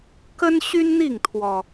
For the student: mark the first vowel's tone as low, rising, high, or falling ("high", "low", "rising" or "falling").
high